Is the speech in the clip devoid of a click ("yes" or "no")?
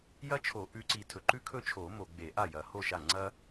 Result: no